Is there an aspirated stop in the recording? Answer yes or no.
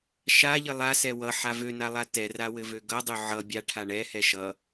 yes